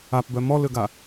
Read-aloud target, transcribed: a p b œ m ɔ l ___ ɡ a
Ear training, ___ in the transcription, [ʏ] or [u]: ʏ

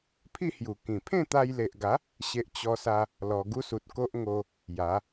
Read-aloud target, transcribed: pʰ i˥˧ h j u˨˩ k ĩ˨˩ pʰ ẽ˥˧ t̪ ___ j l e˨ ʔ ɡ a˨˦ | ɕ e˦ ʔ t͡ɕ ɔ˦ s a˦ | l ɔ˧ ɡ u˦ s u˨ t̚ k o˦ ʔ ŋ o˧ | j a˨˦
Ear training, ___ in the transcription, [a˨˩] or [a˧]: a˧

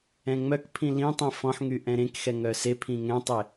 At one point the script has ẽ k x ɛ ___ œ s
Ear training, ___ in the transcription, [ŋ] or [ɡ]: ŋ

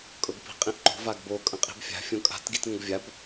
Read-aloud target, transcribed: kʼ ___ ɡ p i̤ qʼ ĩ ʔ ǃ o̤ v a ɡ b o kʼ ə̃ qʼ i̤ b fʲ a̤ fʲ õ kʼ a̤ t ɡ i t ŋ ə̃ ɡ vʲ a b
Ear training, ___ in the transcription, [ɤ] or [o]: ɤ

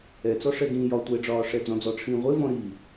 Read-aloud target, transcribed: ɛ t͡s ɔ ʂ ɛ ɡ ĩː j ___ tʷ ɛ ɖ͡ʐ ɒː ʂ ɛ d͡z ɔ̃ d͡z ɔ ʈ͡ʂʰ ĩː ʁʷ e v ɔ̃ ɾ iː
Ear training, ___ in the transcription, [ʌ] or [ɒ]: ɒ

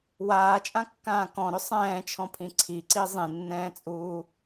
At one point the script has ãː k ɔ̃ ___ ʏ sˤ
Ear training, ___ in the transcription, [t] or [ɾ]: ɾ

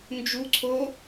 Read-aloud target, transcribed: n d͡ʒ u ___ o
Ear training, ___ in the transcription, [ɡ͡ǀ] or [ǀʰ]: ǀʰ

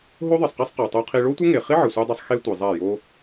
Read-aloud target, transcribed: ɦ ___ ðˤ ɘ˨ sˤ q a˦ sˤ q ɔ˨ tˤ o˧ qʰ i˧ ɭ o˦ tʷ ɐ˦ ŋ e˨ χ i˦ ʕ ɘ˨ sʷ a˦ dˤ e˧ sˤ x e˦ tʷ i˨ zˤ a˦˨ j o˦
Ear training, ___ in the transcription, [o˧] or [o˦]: o˦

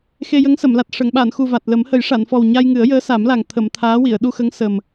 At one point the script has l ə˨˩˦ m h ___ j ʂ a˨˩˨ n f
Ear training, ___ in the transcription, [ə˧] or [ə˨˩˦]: ə˨˩˦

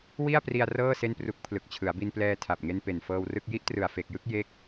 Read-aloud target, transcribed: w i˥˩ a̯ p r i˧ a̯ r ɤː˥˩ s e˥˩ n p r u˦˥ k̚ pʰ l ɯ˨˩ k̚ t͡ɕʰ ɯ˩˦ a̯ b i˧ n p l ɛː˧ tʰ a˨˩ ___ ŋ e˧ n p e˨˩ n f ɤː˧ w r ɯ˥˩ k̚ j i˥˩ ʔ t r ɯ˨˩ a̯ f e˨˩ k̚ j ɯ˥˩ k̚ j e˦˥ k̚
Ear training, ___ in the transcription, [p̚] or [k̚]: p̚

